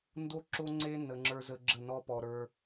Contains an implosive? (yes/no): no